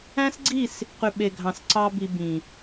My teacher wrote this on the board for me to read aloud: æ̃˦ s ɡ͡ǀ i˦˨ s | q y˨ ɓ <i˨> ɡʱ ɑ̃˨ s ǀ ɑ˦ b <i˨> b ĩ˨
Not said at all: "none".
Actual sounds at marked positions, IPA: e˨, i˧

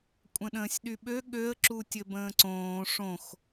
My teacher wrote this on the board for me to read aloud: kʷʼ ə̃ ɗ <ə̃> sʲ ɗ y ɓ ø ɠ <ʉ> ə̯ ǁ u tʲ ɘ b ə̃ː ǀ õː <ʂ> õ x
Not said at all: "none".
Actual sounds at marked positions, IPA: ə̃ː, ø, ʂ

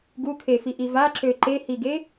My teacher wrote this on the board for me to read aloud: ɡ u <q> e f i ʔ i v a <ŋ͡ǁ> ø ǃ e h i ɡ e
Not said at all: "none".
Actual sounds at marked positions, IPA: kʰ, ǁ

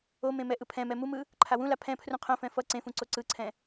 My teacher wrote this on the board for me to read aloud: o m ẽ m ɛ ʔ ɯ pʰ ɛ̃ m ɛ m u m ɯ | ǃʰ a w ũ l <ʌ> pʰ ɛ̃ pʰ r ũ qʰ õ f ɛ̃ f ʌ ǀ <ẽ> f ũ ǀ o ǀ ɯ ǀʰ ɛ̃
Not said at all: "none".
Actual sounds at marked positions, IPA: a, ẽ

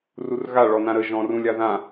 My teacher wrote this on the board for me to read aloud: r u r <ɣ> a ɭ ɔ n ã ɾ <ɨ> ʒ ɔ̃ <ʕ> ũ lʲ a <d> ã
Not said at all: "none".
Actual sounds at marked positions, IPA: ɣ, ə, r, ð

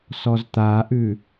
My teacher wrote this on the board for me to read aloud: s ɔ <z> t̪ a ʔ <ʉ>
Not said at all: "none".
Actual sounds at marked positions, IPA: z, ʉ

